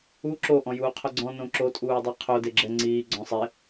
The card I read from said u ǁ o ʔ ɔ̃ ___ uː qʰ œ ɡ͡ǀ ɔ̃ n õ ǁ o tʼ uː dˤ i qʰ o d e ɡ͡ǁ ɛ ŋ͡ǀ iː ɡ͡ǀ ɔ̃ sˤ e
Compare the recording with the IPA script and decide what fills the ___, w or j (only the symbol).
j